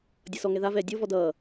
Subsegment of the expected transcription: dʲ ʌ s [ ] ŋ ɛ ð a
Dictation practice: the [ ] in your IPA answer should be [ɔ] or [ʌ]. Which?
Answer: ɔ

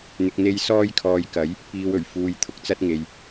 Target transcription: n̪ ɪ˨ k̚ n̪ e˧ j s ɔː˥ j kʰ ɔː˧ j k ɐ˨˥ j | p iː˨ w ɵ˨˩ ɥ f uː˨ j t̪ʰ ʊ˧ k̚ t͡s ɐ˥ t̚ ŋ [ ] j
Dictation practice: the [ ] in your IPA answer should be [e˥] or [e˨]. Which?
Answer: e˨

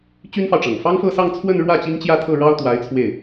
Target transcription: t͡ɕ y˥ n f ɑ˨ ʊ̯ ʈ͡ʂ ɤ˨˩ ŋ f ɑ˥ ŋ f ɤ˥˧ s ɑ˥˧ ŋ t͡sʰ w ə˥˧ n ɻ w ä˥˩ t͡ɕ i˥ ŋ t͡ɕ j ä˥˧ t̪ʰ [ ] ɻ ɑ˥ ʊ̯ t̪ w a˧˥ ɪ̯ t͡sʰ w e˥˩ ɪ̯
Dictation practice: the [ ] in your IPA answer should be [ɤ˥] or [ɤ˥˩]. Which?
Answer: ɤ˥˩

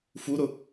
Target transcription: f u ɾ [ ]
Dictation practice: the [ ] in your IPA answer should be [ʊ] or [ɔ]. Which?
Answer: ʊ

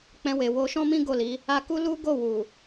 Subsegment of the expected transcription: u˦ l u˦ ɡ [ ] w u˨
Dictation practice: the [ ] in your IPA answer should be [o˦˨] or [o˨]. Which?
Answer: o˦˨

